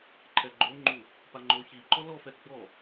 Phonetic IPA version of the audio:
ǃʰ ɛ ɡ͡ǃ o ŋ͡ǃ u | p a ŋ͡ǃ o ç i ǃ ɔ l ɔ f ɛ ɡ͡b ɔ

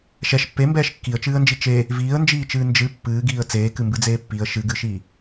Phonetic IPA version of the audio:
ʃ ɛ ʃ pː e m b ɛː ʃ kː i ə̯ t͡ʃ ɨː ə̯ n d͡ʒ i t͡ʃ e | v iː ə̯ n d͡ʒ iː t͡ʃ ɨː n d͡ʒ ɨ pː ɨː ɡ iː ə̯ t͡s eː k ɨ m b ɨ d͡z eː pː i ə̯ ʃ ɨ ɡ ɨ ʃ i

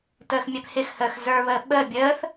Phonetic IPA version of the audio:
t əː x mʲ æ p h ɪ x h əː x z ə˞ β əː ɓ əː bʲ əː θ

